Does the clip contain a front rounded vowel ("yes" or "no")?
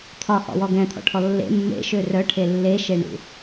yes